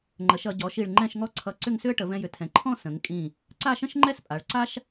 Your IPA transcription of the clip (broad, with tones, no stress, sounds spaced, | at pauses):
ŋ͡ǃ ə˩˧ ʃ ʌ˩˧ ɟ ɔ˩˧ ʃ i˧˩ ɭ ŋ͡ǃ ɛ̃˥˧ ʃ ŋ ɔ˥ ǀʰ ʌ˧ ǀ ʏ˥˧ ŋ s ʏ˥ ə̯ ʈ ə˩˧ v ɛ̃˧ j ʏ˩˧ tʰ ɛ̃˩˧ ǃʰ ɔ̃˥˧ s ə̃˩˧ ŋ kʼ ĩ˧˩ | ǀ a˥˧ ʃ ə̃˥ ʃ ŋ͡ǃ ɛ˥ s pʼ a˩˧ ɭ ǀ a˥ ʃ